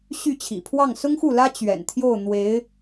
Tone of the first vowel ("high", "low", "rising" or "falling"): falling